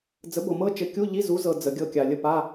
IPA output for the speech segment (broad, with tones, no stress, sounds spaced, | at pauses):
d͡z ə˨˥ b ɤ˨ m ɤ˦˥ t͡ʃ ɘ˨˥ kʲ u˧˥˧ ʎ i˧˥˧ z u˨˥ z ɤ˨ d͡z ə˨ ɡʲ ɤ˦˨ kʲ a˨ lʲ ə˦˨ p a˧˥˧